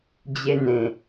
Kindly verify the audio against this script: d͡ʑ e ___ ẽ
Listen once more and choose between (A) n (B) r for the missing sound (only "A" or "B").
A